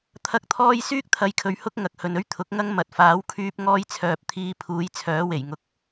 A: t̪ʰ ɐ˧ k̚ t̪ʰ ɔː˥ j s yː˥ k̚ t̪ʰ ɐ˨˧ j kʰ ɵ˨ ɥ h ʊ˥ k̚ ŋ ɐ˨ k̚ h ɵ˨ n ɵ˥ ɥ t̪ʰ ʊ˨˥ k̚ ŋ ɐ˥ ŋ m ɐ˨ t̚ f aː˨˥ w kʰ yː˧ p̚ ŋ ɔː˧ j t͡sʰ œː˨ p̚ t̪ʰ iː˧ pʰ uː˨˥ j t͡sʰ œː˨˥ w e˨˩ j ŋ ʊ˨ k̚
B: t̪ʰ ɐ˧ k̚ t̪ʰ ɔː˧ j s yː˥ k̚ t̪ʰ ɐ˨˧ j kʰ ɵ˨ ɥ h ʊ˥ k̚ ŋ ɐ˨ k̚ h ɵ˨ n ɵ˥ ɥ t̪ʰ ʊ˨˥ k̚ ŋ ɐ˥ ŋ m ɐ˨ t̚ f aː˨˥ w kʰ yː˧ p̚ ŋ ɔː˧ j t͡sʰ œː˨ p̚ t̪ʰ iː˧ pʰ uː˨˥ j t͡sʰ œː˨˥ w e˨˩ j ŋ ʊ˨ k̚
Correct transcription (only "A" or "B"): A